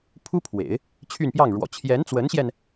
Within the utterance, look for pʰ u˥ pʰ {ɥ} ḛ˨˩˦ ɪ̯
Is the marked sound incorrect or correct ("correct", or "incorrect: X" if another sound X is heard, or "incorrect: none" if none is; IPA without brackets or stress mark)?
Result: incorrect: w